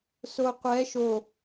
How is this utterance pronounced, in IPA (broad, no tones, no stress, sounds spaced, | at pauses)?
s o qʷ ɛ ʃ o